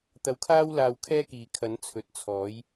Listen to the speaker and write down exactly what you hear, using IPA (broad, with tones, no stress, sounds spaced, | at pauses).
t̪ ɐ˧ w kʰ aː˥ w l aː˧ w kʰ ɛː˥ k iː˨ kʰ ɐ˨˥ n t͡sʰ ɵ˨˥ t̚ t͡sʰ ɔː˨˥ j